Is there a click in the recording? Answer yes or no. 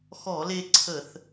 yes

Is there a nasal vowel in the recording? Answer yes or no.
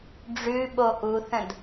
yes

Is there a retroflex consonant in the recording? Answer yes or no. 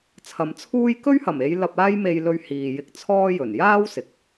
no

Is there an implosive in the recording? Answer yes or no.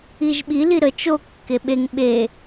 yes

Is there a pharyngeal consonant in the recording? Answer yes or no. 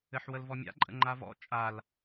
yes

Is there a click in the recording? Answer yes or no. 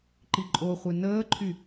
yes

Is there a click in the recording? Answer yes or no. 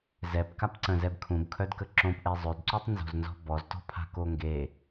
yes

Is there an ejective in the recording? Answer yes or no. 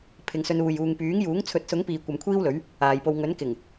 no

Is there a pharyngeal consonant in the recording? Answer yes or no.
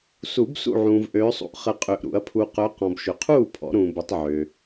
yes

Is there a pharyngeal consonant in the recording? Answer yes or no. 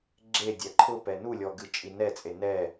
no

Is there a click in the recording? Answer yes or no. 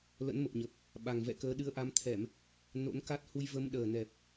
no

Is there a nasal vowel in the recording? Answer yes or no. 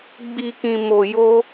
yes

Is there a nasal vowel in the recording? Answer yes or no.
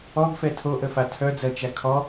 no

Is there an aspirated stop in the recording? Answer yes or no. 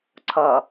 yes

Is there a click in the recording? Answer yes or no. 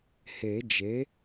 no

